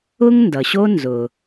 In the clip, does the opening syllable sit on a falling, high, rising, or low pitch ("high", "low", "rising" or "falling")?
high